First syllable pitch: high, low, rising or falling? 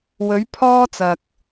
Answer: rising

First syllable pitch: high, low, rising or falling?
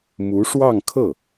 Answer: rising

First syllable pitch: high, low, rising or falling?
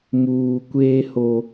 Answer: low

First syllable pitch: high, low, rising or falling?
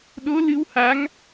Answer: rising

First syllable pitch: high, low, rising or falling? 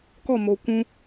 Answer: falling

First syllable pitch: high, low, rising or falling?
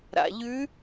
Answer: low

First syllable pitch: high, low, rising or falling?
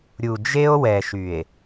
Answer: low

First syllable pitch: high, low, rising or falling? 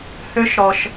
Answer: high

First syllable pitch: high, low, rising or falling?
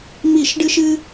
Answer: falling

